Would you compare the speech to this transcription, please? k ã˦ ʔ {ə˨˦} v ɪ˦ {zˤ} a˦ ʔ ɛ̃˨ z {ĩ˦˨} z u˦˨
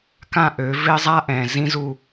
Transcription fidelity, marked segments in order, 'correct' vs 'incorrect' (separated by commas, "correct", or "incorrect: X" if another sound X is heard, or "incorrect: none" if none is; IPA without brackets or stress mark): incorrect: ø˨˦, correct, incorrect: ĩ˦